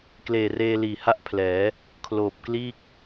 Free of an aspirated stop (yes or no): no